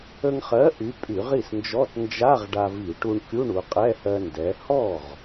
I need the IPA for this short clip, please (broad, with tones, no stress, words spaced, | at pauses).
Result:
ə˧ŋχɜ˨˥ ʔy˨˥pʼy˧˩˧ʁ i˥˩snd͡ʒɔ˧˥˧t nd͡ʒa˧˥˧ʁ ɖa˧vi˧˩˧ʈu˧ɳ kʲu˧˥˧ɳu˩˧qʼɛ˧˥˧hɜ˧ ndɛ˩˧hɔ˥˩ʁ